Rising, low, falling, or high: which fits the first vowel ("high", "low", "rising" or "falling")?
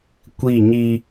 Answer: falling